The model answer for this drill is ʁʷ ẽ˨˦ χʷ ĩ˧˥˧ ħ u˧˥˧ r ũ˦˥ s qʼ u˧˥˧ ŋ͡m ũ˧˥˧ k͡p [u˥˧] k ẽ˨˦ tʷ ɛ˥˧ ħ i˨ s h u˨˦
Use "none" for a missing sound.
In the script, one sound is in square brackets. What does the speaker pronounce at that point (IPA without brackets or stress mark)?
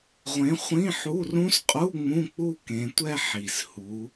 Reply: u˥˧